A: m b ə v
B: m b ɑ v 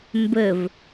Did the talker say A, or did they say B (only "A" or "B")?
A